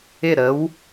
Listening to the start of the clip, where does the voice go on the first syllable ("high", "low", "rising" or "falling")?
falling